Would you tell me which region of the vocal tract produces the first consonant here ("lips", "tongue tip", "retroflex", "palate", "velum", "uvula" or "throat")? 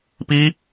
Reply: lips